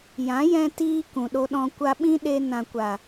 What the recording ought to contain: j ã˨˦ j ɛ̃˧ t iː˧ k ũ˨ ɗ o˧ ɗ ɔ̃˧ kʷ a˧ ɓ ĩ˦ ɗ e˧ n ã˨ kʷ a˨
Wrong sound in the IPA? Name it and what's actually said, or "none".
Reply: none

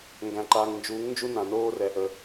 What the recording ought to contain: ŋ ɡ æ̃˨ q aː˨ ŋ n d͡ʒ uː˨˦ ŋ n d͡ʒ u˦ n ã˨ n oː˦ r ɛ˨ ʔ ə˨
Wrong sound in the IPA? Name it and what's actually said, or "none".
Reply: q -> ǃ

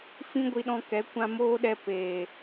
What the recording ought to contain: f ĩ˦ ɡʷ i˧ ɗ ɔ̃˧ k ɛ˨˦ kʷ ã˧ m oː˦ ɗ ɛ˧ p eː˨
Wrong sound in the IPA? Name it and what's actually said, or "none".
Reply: none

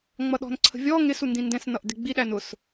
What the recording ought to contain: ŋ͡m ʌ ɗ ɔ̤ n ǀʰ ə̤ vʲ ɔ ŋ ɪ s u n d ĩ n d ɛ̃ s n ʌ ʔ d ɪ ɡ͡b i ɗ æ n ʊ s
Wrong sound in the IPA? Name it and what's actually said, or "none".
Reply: none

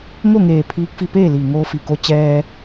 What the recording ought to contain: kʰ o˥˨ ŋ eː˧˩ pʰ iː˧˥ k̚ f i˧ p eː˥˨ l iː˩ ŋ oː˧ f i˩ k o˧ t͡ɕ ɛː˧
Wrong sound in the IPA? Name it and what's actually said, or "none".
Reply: kʰ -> ŋ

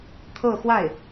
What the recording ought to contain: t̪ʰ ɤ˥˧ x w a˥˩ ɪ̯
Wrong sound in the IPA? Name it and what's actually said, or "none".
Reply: none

